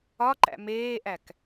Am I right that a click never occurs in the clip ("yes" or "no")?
no